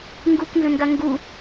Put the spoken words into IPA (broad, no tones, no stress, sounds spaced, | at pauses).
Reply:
ŋ ɡ u k n z ə̃ n ɡ a ŋ ɡ u